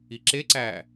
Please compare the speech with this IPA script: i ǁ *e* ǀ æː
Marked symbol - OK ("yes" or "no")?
yes